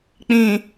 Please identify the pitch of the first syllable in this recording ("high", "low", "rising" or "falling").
low